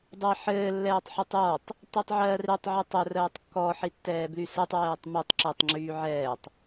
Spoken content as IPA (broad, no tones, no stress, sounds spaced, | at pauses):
dˤ e ħ ɘː lː ɛː tˤ ħ o tˤ j ɔ tˤ | t i tˤ ʕ ɜː r e tˤ ʕ u tˤ ɘ r ɜː tˤ kː ɔ ħ i tː ɛː b l y s ɛ tˤ w ɛː tˤ m u tˤ ǁ ɛ tˤ ŋ͡ǁ yː ʕ ɛː tˤ